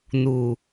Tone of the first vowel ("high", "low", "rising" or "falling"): low